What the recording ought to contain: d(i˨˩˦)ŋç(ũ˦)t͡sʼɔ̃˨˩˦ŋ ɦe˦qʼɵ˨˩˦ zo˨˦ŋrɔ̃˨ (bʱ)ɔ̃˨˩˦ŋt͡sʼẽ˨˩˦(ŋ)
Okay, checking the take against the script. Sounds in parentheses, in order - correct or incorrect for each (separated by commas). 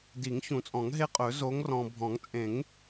correct, incorrect, correct, correct